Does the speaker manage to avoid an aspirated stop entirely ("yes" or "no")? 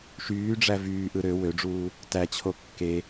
no